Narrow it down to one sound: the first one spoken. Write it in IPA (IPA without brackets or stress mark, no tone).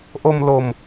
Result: ʔ